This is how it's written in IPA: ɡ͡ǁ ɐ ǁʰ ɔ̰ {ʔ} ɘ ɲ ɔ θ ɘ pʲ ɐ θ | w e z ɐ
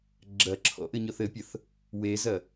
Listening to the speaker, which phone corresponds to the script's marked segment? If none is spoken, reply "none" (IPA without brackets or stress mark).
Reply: ʔ